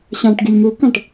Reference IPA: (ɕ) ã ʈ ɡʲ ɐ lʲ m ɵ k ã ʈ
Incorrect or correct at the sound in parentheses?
correct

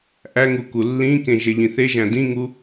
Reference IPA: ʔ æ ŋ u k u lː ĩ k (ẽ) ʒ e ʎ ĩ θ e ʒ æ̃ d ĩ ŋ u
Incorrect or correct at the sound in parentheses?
correct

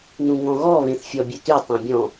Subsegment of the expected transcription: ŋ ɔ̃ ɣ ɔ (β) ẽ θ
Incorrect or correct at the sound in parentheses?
correct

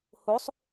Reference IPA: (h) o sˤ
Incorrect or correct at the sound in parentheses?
correct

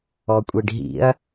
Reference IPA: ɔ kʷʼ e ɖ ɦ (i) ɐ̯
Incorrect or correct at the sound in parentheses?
incorrect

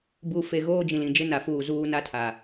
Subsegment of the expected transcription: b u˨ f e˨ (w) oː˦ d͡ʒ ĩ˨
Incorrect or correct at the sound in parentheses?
incorrect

